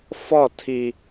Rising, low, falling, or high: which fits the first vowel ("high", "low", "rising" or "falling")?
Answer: falling